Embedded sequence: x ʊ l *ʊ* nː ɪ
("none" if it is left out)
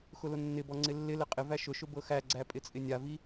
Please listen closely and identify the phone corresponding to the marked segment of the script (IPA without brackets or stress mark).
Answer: ʊ